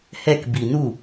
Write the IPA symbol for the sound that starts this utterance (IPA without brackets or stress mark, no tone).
h